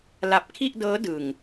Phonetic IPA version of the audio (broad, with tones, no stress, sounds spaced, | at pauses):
l a˨˩ p̚ kʰ i˥˩ ʔ d ɤː˦˥ d ɯ˨˩ ŋ